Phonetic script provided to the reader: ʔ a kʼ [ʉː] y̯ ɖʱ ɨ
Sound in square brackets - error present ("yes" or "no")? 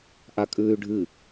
no